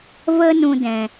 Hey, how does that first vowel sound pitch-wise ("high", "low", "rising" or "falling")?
high